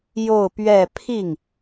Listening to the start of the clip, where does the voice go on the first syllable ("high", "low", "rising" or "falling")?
falling